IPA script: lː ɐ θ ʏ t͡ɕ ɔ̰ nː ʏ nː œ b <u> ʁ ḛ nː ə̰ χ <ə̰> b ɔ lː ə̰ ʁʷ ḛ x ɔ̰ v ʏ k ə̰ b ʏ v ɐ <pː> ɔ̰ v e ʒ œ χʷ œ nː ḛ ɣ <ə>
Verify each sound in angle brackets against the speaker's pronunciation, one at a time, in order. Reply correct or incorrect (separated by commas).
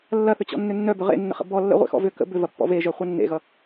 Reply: incorrect, correct, correct, incorrect